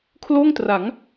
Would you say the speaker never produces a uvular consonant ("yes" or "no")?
yes